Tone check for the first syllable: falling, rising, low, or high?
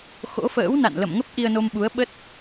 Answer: rising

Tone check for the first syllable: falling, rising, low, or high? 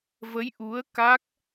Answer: rising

